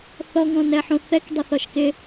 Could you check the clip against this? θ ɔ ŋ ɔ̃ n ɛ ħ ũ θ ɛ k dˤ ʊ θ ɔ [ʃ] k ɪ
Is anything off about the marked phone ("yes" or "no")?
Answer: no